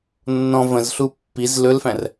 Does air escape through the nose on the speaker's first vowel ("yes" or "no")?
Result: yes